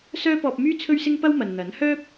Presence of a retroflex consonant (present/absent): absent